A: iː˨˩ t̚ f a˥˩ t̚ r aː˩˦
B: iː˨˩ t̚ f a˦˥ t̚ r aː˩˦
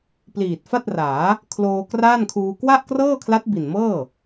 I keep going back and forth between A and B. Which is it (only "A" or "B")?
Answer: A